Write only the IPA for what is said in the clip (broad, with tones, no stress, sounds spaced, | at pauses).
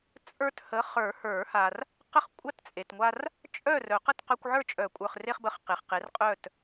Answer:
t͡sʼ ə˞˦ t h ə˨˥ χ ə˞˨˩˦ h ə˞˨˩˦ h a˨ r | q ə˥˨ χ kʷʼ a˥˨ t t͡sʼ e˨ t ŋʷ a˦ r | t͡ʃʼ œ˥˨ r œ˨˩˦ q ə˥˨ t q œ˦ kʷ ʕ ə˞˥˨ t͡ʃʼ œ˨˩˦ kʷʼ ə˞˨ χ r e˦ χ b ə˨˥ χ q e˨ χ q e˨˥ r qʼ œ˥˨ t